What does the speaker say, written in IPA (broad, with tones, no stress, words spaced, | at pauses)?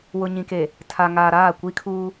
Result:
wʊ˨ɲĩ˨ke˨ | tʰa˨ŋaː˨ɾaː˦˨ kʷi˦kʰuː˦